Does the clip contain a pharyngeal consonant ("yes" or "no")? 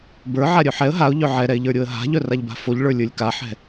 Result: yes